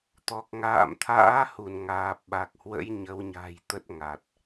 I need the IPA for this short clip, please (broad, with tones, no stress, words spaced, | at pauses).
t̪ɔ˨˩k̚ŋa̰ː˧˨mt̪ʰa̰ː˧˥hu˧˩n ŋaː˨˩p̚ɓa˨˩k̚hwə̰˧˥j ɲə˨˦wɲa̤˨˩jt̪ə˦˥t̚ ŋa˨˩t̚